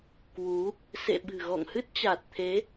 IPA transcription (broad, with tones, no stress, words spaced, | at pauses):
kwu˨˦ | sḛ˧˨ɓɨ̤˨˩ɣɔ̰˧˨ŋ hɨ˦˥t̚t͡ɕa˨˩t̚t̪ʰe˨˦